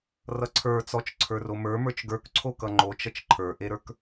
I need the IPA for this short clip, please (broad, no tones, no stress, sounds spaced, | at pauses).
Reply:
r ʌ ǀʰ ə˞ t͡s ɔ t͡ʃ ǀʰ ə˞ r o m ə˞ m ə˞ t͡ʃ ɡ ə˞ k ǀʰ o k ʌ ŋ͡ǃ o t͡ʃ ʌ t͡ʃ ǃʰ ə˞ ʔ e ɾ ə˞ k